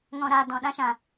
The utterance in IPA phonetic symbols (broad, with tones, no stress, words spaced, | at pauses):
ŋɔ̃˧ ɾaː˧ dɔ̃˧ ɗã˦ʃã˧